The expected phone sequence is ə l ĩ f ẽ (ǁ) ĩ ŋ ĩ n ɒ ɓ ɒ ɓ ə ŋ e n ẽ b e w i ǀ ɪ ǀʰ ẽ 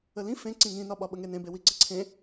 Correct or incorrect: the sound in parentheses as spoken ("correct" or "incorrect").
incorrect